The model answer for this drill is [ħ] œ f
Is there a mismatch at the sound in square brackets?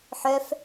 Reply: no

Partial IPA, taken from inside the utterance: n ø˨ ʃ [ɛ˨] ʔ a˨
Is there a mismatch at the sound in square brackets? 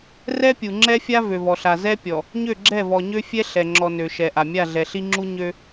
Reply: no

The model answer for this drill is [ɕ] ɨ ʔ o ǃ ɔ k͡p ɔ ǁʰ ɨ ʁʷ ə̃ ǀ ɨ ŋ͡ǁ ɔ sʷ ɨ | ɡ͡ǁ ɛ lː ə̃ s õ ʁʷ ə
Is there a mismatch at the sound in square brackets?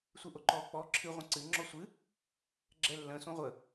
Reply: yes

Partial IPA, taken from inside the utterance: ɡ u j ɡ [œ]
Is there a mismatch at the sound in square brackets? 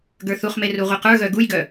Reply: no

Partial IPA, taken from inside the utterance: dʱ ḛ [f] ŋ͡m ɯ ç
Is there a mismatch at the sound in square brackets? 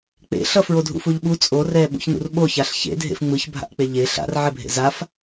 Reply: no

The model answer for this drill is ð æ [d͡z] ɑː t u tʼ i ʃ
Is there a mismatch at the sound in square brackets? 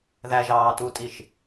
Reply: yes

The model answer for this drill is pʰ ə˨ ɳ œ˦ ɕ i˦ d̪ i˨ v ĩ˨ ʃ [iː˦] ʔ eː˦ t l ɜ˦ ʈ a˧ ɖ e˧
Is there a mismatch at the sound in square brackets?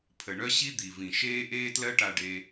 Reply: yes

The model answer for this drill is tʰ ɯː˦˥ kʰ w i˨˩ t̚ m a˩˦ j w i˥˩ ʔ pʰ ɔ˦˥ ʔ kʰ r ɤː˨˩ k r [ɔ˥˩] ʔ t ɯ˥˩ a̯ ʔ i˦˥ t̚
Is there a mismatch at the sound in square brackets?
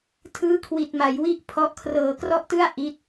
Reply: no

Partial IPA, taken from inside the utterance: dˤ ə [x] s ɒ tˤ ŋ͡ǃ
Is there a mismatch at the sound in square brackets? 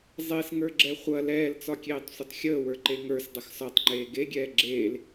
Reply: no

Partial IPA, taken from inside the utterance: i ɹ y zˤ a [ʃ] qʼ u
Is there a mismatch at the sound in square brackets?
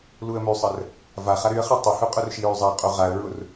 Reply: yes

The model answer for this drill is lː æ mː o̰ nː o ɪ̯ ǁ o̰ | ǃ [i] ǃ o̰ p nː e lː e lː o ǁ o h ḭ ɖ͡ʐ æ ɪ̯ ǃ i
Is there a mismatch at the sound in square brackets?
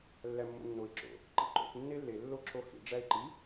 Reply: yes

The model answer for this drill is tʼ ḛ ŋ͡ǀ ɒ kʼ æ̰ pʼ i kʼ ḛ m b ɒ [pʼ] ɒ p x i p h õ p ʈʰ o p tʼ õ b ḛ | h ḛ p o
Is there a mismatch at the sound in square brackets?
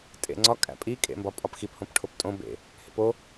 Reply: no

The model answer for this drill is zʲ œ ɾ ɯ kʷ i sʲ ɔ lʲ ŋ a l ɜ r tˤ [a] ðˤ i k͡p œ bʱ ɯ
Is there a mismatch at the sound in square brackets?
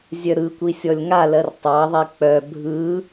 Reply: yes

